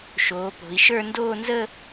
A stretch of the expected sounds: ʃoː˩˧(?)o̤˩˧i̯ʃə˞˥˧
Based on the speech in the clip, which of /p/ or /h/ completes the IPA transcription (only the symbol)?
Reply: p